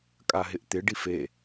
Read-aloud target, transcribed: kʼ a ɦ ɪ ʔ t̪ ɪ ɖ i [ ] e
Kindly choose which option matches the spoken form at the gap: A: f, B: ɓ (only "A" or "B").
A